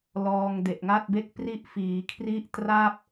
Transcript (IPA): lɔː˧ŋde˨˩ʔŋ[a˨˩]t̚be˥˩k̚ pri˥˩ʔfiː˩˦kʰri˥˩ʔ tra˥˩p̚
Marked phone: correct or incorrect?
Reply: incorrect